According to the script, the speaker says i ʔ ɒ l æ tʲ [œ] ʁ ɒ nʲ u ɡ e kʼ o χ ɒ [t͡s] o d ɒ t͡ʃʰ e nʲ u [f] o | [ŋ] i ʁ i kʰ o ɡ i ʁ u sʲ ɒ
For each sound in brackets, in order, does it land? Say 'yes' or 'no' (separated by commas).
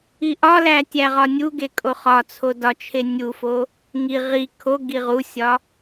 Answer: no, no, yes, yes